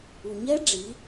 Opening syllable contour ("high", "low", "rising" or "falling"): low